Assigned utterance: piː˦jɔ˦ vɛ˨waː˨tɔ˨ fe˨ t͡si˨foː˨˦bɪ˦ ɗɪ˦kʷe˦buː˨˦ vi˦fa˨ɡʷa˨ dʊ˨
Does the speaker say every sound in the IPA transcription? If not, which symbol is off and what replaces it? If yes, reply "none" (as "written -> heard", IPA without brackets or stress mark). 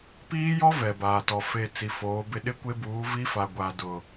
w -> b